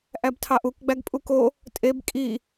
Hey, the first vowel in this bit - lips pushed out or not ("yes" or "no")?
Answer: no